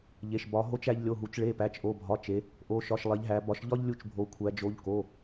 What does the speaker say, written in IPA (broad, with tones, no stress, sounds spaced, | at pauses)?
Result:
ʎ e˩˧˩ ʃ b ɒ˩˧ ɦ o˧ t͡ʃ æ˧ ʎ lʲ o˩˧˩ ɦ u˩˧ t͡ʃ ɭ e˩˧˩ p æ˩˧˩ t͡ʃ ʔ o˩˧˩ bʱ ɒ˩˧˩ t͡ʃ e˩˧ | ʔ o˩˧˩ ʃ ɒ˩˧˩ ʃ lˠ e˩˧ ʎ ɦ æ˩˧ b ɒ˩˧ ʃ ʎ ɒ˧ ʎ lʲ u˧ t͡ʃ bʱ o˩˧ kʷʰ æ˩˧ d͡ʒ o˩˧˩ ʎ k o˩˧˩